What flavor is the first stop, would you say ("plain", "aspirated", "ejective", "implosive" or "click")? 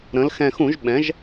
implosive